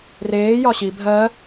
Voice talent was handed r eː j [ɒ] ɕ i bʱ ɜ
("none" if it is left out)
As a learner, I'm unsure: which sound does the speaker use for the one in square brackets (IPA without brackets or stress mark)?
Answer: ɒ